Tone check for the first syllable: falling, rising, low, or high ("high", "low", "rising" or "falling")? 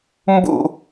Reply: falling